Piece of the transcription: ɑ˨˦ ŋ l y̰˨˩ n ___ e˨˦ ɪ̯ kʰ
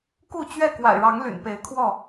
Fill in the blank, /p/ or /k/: p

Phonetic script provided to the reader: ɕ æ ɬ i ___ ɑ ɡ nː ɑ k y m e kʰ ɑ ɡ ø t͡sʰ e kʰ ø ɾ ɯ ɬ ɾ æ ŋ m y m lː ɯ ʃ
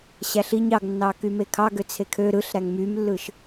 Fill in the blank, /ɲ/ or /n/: ɲ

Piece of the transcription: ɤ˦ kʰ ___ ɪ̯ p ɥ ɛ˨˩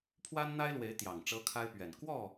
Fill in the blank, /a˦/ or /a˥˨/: a˦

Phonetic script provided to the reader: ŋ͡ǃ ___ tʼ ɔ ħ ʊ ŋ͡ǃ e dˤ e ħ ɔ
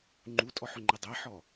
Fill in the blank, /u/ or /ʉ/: u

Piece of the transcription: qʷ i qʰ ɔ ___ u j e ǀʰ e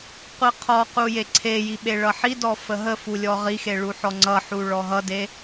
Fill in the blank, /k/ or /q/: q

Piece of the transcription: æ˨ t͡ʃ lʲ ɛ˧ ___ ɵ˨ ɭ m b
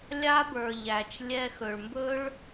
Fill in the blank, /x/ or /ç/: x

